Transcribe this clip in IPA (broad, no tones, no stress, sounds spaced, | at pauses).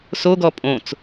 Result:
s o ɡ ɔ pʼ õ t͡s